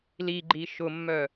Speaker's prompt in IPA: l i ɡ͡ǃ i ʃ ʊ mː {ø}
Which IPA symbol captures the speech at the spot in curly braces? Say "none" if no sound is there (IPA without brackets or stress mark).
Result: œ